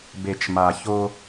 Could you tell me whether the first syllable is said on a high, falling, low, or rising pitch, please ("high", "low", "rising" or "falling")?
low